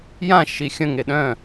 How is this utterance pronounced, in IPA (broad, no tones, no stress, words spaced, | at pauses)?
jãʃi xʲə̃ŋe ɗœ̃